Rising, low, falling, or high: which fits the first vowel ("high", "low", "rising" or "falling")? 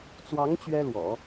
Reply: rising